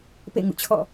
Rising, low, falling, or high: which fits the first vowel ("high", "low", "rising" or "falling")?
falling